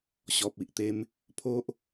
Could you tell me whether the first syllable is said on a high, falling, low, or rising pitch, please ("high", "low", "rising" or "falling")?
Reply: low